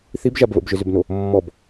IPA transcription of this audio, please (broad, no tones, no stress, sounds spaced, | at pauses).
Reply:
θ i b ʒ a b β ə̰ b ʒ ʏ z ʏ b n o | mː ɔ b